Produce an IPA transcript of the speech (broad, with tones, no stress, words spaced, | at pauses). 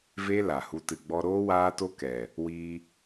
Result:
ve˦ la˨hu˧ tɨ˨ɡ͡bɔ˧ɾoː˦ waː˦to˦kɛ˨ | wiː˧